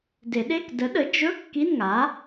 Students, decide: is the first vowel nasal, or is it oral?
oral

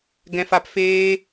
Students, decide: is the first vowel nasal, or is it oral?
nasal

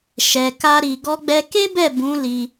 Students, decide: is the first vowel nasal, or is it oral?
oral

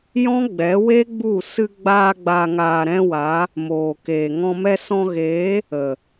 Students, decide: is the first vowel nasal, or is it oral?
nasal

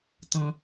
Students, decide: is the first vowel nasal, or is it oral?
nasal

